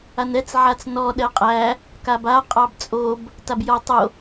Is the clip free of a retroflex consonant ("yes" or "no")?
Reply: yes